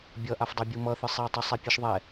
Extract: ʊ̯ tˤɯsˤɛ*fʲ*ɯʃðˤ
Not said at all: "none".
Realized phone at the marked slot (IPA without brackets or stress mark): pʲ